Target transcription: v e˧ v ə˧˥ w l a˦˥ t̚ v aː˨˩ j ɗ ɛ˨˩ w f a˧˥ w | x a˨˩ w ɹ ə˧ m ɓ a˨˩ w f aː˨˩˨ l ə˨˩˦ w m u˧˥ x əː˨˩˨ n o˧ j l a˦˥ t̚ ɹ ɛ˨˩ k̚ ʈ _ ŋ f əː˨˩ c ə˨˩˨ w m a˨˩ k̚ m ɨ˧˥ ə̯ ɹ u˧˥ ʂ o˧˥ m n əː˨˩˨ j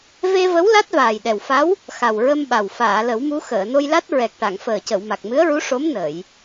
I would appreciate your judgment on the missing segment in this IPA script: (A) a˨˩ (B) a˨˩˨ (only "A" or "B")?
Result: B